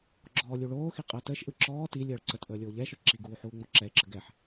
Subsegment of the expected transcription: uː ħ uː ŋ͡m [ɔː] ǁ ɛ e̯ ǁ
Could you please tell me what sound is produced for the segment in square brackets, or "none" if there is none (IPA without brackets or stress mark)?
ɔ